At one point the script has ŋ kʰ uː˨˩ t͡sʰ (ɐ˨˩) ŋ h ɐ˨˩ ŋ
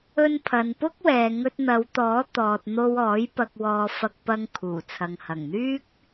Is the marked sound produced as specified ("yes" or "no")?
no